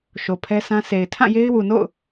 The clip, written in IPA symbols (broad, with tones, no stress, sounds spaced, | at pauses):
ʃ o˨ pʰ ɛ˦ s ã˦ s e˨ ɪ̯ tʰ ã˦˨ j e˦ ɪ̯ w u˨ n o̰˦˨ ʊ̯